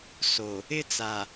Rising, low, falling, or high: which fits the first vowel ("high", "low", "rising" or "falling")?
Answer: low